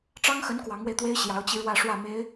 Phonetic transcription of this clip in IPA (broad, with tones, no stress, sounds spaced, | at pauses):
ʈ͡ʂ ɑ˥ ŋ x ə˧˥ n k w ɑ˧˥ ŋ w e˧ ɪ̯ t̪ w e˥ ɪ̯ ɕ j ɑ˧˥ ʊ̯ t͡ɕ i˧ ɻ w ä˥˧ ʂ w ä˥˩ m e˧˥ ɪ̯